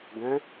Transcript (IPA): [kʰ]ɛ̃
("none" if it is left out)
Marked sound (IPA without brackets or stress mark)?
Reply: ɡ